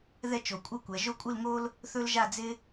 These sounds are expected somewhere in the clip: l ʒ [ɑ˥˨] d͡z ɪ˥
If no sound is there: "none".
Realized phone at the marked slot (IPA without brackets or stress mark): a˥˨